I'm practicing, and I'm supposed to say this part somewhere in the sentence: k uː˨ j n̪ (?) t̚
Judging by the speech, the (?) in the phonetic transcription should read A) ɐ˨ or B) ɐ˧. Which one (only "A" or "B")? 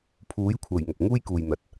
A